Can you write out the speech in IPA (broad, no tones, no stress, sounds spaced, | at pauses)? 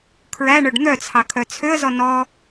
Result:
kʰ ɹ æ ɳ œ ɖ n̪ œ t͡sʰ ɑ kʰ œ t͡sʰ ø ə̯ z ɔ n ɔ